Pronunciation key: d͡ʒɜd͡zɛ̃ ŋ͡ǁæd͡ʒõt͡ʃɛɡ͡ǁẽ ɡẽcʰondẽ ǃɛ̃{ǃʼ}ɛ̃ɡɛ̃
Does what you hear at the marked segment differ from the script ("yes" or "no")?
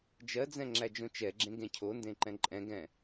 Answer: no